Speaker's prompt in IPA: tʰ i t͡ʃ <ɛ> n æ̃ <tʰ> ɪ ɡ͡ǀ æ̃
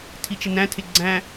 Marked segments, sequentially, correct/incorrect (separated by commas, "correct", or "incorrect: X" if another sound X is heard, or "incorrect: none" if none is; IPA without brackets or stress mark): incorrect: ɪ, correct